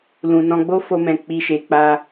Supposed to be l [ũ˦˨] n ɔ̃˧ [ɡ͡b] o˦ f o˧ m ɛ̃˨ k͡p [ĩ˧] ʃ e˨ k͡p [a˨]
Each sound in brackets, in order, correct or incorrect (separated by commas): incorrect, correct, incorrect, incorrect